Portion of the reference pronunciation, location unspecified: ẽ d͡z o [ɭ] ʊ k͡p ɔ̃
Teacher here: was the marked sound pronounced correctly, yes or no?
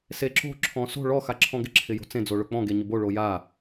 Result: yes